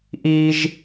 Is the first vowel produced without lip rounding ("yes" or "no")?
yes